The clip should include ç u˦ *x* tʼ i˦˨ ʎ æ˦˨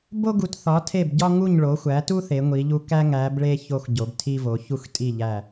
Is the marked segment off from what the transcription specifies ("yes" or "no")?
no